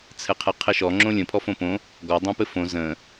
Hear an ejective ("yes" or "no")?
no